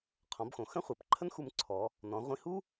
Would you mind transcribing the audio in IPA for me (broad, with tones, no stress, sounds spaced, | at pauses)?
qʰ ɔ̃˩˧ b x õ˩ x ə̃˥ χʷ ʌ˩ p ǃʰ ə˥ n x u˧ m ǀʰ ɔ˩˧ | n ɔ̃˩˧ ʁʷ ĩ˧ h u˥